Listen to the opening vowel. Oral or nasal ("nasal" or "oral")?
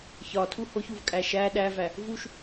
oral